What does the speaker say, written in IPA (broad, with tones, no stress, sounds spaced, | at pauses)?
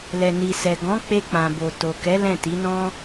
l ɛ˨ n i˨ s ɛ˨ ɡ ɔ̃˨˦ k͡p e˧ k͡p ã˨ b o˨ t o˨ k ɛ˨˦ l ɛ̃˦˨ t i˨˦ n ɔ̃˦